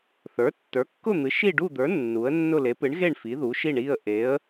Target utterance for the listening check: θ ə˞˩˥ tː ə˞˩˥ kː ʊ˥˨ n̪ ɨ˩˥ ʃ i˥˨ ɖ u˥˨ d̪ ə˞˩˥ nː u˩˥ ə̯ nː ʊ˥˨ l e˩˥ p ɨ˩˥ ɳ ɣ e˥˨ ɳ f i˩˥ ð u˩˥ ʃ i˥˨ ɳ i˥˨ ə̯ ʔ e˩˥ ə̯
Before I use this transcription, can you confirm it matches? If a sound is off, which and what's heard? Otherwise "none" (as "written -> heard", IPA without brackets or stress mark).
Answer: none